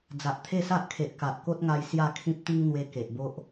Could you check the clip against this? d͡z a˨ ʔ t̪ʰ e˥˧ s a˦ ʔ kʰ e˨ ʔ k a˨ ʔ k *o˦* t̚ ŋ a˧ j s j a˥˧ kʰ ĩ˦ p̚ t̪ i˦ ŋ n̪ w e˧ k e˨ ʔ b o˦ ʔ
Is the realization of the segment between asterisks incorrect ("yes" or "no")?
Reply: no